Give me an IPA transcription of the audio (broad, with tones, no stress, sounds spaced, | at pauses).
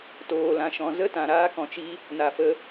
t oː˨ l ã˨ ʃ ɔ̃˨ z ə˦ t ã˨ ɾ aː˧ k ɔ̃˨ t͡ʃ i˧ | n a˨ f ə˧